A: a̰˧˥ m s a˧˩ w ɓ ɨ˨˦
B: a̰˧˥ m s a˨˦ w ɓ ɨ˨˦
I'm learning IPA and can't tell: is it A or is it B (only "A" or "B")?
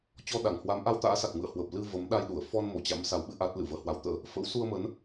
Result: B